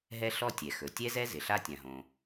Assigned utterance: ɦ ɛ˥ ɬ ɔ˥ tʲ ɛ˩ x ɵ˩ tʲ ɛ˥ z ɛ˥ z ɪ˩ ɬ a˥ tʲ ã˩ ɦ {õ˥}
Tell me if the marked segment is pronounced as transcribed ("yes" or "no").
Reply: no